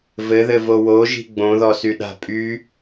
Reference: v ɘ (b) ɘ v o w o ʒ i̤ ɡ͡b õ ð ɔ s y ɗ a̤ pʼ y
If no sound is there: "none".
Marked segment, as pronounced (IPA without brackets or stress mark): ð